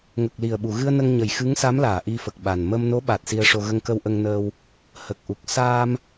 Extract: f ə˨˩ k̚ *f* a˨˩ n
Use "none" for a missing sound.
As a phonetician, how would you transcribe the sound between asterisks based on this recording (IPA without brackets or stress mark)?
ɓ